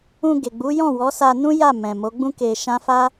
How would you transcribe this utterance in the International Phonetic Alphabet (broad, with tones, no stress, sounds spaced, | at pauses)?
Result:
ũ˧ ɡ e˨ ɡ͡b u˨˦ j ɔ̃˦˨ w ɔ˨˦ s a˧ n ũ˦ j a˦˨ m ɛ̃˨ m o˨˦ ɡ͡b ũ˦ k e˧ ʃ ã˦ f a˦